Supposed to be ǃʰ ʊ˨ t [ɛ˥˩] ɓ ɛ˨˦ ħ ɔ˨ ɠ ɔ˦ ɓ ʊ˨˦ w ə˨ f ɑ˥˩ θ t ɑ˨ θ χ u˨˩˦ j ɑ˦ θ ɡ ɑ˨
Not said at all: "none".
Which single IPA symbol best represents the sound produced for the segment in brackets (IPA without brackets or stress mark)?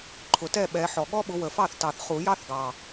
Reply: ɛ˥˩